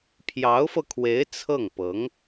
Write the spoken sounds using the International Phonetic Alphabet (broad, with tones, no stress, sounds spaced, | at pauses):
pʰ j ɑ˧˥ ʊ̯ f ɤ˧ kʰ w e˧˥ ɪ̯ t͡sʰ ɤ˥˩ ŋ p ɤ˧˥ ŋ